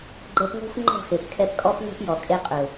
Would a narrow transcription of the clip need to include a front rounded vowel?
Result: no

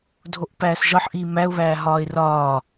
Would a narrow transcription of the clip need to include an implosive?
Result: no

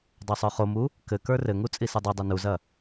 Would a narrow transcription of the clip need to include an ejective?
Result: yes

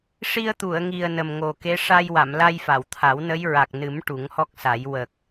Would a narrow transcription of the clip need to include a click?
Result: no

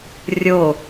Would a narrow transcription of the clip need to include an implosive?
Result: no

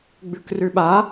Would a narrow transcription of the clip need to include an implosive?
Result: yes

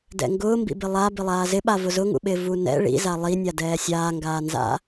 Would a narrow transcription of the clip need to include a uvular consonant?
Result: no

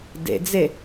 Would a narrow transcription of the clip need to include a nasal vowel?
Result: no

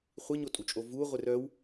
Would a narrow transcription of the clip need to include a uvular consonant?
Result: yes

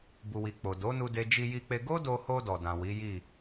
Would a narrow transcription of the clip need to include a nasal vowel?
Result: yes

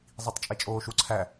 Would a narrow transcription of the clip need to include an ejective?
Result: yes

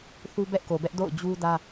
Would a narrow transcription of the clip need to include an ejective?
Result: no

